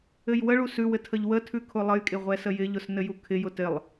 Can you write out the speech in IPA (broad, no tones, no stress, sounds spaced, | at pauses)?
ɘ j w ə ɭ u s ʉ w ɘ tʰ ə ʎ w ə tʰ ʉ kʰ ʊ lˠ ə j kʼ ɪ ʁʷ ɛ s ə j ɪ ʎ ʊ s n ɘ j u kʰ ɪ j ʊ t ɪ lˠ